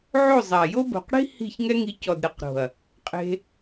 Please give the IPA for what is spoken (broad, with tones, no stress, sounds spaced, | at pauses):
ʕ o˦˨ zˤ a˨ j o˦ b o̤˨ q ɽ i̤˦ h i̤˦˨ ç ŋ ɛ˦ ŋ i˧ c ɔ˨ d ɾ ɨ˨ q ɾ o̤˨ ɐ̯ | qʼ e̤˧